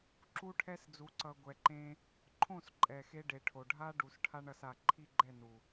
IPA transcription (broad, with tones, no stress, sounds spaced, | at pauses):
ǁ u˧ ʈʰ ɛ˧ s d͡z u˨ ǀ ʌ˨ ɡʷ ɛ˨ ǃ ẽ˧ | ǃʰ õ˦˨ s ǃʼ ɛ˨ x e˧ ɖ e˨ ʈʰ o˨ ɖʱ a˦ ɖ u˨ s ʈʰ a˧ ɳ ʌ˨ s a˨ ǃʰ i˦˨ ɡ͡ǃ ɛ˦˨ n u˨